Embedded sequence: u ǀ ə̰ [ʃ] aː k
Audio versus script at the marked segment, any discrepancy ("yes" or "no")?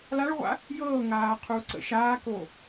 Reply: no